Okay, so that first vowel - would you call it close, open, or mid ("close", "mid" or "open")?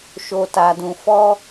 mid